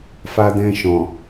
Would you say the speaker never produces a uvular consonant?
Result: yes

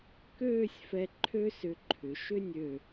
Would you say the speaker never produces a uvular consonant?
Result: yes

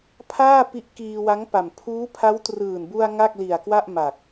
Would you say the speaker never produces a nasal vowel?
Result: yes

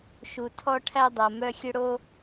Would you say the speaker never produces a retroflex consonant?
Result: no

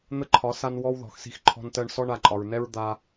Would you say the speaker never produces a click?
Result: no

